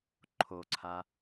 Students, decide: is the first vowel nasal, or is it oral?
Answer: oral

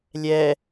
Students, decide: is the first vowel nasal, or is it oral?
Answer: oral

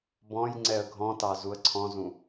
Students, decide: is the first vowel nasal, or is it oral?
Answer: nasal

